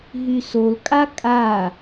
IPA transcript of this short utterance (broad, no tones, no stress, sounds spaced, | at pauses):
ɦ y s o l kʼ a kʼ a